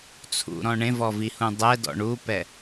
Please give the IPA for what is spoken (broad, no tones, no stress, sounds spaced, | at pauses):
t͡sʰ ṵ ɾ ɔ̃ ɳ ẽ v ɔ v i h ũ dˤ ɛ d ɔ̰ ɳ u p ɛ